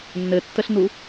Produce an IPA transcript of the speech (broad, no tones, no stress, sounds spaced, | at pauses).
nː ɘ tː ə ɬ n u